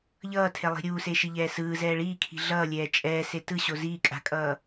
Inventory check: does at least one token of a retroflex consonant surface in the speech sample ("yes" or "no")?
yes